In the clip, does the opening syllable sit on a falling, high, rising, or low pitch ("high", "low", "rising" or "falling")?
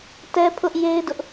high